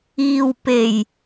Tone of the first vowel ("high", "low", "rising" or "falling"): low